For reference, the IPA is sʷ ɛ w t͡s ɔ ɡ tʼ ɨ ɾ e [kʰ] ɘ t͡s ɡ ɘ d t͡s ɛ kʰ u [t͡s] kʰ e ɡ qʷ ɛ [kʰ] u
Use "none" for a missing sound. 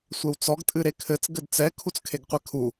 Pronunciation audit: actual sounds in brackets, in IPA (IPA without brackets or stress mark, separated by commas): kʰ, t͡s, kʰ